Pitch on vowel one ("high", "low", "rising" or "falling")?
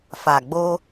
low